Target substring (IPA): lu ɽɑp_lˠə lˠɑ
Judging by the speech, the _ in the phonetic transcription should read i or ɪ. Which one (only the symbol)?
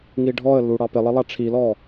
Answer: ɪ